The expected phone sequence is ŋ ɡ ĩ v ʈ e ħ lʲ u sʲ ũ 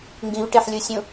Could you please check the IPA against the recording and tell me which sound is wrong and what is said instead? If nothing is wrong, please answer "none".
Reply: none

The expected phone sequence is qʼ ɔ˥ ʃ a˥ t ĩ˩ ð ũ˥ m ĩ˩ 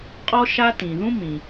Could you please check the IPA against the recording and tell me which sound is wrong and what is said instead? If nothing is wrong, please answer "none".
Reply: none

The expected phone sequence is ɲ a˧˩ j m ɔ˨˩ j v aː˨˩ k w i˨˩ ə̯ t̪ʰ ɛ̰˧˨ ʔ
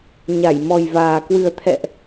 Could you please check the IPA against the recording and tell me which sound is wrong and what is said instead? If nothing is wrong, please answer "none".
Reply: i˨˩ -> ɨ˨˩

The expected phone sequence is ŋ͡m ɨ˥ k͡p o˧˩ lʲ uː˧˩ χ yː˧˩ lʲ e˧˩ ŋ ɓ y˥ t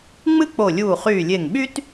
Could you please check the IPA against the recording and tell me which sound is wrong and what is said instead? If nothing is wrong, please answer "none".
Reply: none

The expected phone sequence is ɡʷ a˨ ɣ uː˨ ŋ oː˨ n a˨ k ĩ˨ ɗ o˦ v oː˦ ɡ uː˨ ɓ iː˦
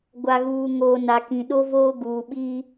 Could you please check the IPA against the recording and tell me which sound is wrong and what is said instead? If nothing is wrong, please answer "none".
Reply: none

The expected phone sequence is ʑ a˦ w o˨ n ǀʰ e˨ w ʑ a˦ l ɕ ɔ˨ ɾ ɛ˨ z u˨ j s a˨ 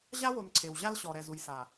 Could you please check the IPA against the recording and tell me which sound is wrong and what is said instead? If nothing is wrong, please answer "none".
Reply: none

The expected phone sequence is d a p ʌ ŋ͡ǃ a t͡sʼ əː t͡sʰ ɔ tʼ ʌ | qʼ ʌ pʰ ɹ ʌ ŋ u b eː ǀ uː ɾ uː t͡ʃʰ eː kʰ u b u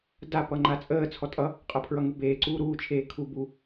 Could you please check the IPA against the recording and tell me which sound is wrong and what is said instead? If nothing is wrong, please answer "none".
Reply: none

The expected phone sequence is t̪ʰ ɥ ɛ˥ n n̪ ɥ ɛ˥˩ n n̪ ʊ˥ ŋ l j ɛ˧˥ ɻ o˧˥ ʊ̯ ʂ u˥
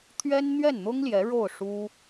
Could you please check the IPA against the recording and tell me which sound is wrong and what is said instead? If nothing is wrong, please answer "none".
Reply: o˧˥ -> o˥˩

